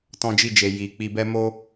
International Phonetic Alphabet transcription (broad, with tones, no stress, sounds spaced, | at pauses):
t ɔ̃˧ d͡ʒ i˧ d͡ʒ e˨ j i˨ k͡p i˨ b ɛ˧ m o˧